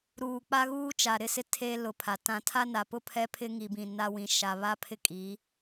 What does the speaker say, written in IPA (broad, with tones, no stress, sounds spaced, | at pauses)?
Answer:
ɾ uː˨ k͡p a˦ ɣ uː˦ t͡ʃ a˨ ɾ ɪ˦ s ɪ˦ tʰ eː˦ l ʊ˨ pʰ a˨ t ã˨ tʰ a˦ n a˨ p ʊ˦ pʰ ɛ˦ pʰ ɪ˦ ŋ i˨ b ĩ˨ n a˦ w ĩ˨ ʃ a˨ β a˦ pʰ ɪ˦ kʼ i˨˦